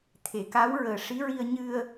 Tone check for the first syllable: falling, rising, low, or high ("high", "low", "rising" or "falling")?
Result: low